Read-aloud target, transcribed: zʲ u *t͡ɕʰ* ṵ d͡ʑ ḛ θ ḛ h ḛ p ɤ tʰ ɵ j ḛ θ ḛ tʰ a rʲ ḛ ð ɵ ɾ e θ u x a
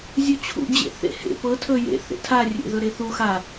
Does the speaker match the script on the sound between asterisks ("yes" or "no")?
yes